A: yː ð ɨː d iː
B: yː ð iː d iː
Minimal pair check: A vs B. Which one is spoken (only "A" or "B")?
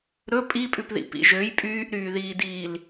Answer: B